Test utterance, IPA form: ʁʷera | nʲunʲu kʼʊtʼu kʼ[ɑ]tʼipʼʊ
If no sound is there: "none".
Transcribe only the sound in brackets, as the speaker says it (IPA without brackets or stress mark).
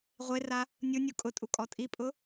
ɔ